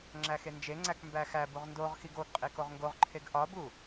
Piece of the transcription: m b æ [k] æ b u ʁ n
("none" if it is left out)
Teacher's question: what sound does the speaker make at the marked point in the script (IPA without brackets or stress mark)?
x